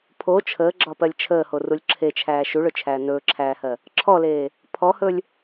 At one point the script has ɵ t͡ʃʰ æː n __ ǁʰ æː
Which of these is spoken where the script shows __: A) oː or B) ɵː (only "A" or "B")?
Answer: B